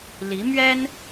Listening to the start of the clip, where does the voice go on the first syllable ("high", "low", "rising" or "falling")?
rising